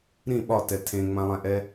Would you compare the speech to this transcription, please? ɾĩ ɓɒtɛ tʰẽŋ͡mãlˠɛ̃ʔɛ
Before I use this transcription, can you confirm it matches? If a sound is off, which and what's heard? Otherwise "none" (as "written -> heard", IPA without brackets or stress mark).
none